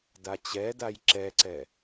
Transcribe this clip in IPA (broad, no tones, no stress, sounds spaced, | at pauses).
d a t͡ɕ ɛ d a j ǁ ɛ ǀ ɛ